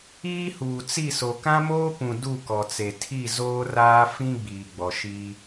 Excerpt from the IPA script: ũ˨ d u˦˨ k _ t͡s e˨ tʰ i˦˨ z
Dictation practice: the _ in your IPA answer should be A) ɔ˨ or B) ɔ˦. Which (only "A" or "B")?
A